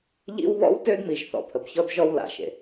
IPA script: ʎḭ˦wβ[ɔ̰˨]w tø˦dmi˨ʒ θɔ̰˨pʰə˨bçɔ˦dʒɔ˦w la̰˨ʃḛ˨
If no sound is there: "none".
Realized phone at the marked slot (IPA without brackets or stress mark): ɔ̰˦